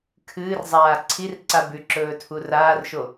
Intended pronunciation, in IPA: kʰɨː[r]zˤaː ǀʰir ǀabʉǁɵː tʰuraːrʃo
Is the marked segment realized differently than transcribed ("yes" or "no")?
no